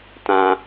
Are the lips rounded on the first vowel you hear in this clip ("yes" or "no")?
no